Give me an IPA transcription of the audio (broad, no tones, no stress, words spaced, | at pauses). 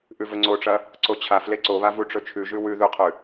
ʔʉvɵŋ͡ǀoʈ͡ʂɐ | ǀot͡ɕʰafle ǀoβa vuʈ͡ʂɵt͡ʃʰʉʒʉ wʉ ðʉqʰʉ